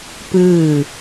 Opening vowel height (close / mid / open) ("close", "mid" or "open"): close